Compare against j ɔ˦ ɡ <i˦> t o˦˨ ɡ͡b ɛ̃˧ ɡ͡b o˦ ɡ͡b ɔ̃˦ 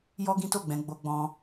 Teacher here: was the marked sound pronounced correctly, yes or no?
no